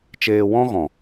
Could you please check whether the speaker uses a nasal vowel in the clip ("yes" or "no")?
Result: yes